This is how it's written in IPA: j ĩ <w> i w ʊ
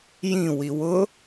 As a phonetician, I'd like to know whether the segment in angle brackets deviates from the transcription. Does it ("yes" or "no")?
no